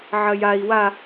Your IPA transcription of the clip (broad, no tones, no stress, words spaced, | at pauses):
ʕɐjai̯ wa